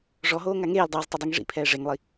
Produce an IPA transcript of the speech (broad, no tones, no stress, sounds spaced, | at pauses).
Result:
ʐ ɔ ɦ oː ŋ a ŋ eː l dˤ oː z tˤ e dˤ i ŋ ʐ ḭ pʰ ɛː ʐ e ŋ lˠ i